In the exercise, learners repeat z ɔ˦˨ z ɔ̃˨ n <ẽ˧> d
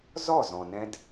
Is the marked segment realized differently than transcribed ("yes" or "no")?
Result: yes